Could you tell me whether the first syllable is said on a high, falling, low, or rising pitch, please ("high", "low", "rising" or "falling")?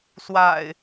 low